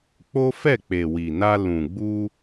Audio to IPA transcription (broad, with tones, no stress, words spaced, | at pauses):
k͡po˦fɛ˦˨ k͡pe˨wi˨na˧ lũ˨ɡ͡bu˧